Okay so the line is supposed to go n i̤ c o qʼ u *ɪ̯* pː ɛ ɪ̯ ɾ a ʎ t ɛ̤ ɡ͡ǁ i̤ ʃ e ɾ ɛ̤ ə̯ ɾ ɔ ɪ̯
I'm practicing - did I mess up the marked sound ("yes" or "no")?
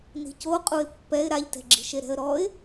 no